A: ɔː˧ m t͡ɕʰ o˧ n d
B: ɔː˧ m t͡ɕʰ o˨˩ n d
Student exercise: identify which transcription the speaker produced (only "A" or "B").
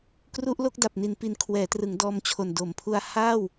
B